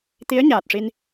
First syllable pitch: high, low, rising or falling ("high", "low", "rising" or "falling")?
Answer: rising